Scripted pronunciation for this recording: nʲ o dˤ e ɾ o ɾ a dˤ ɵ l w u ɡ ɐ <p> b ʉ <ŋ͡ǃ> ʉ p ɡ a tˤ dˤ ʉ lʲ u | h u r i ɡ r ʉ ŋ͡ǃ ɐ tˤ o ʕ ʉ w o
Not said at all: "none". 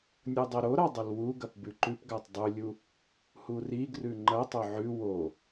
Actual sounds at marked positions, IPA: p, ǃ

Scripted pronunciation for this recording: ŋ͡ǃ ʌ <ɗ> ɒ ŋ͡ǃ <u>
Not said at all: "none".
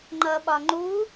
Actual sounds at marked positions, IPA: ɓ, u

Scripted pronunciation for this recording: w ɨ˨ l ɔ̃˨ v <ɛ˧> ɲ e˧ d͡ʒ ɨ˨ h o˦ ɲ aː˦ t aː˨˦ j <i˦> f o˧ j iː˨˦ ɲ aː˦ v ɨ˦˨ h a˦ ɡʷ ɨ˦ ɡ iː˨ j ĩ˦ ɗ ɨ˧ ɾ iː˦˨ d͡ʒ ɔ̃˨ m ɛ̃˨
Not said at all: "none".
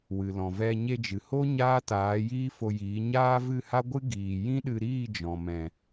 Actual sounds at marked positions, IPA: ɛ˧, iː˦

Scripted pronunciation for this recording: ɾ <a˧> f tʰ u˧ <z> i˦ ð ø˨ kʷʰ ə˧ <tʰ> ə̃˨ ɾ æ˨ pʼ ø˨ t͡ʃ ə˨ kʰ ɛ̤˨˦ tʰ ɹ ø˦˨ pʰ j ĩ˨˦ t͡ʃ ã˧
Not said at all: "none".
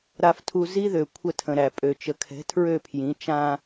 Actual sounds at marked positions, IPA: a˧, z, tʰ

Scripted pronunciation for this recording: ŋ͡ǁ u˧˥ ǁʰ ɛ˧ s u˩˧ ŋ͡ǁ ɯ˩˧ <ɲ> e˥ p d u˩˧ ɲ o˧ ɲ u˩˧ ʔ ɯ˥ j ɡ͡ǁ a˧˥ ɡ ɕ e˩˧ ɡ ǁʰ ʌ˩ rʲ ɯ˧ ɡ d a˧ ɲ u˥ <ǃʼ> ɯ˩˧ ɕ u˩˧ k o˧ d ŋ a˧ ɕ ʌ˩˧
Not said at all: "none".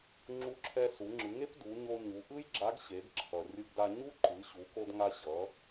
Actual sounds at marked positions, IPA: ŋ, ǃ

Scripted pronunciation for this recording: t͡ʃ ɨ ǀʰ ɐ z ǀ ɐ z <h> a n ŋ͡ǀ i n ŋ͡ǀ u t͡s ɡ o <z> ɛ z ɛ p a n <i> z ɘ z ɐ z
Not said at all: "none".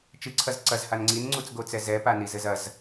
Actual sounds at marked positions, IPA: h, t͡s, i

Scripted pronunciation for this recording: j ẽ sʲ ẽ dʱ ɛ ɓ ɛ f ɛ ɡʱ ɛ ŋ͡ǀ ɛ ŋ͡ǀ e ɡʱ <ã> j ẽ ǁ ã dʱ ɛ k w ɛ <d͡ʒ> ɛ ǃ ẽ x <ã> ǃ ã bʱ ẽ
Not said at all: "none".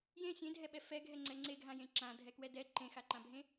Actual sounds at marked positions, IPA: ã, d, a

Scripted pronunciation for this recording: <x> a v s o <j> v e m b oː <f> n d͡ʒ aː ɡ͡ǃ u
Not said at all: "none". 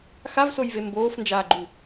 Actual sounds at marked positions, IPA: x, j, f

